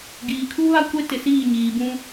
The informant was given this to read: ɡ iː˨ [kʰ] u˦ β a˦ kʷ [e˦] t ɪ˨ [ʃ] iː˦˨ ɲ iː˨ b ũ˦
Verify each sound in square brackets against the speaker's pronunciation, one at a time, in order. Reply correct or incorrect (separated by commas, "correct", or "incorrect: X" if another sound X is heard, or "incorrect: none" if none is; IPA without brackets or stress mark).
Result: correct, correct, incorrect: s